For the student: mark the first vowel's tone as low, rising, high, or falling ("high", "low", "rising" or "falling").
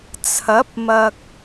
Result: rising